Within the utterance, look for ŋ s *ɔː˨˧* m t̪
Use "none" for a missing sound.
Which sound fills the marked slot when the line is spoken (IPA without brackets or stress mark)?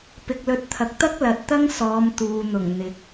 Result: ɔː˨˧